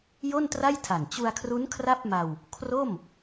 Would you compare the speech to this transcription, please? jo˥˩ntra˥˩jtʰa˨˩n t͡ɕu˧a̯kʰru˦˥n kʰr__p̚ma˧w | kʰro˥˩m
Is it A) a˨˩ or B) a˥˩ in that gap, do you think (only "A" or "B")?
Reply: B